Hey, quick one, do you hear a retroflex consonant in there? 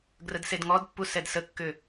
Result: no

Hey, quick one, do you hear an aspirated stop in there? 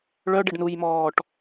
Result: no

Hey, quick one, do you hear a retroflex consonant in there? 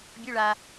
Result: yes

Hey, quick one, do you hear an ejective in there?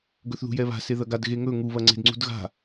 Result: no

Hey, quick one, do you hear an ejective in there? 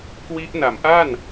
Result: no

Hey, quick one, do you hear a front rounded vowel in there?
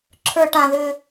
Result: yes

